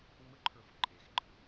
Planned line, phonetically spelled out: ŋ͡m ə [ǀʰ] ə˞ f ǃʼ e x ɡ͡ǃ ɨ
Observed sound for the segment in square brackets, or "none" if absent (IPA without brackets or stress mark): ǃʰ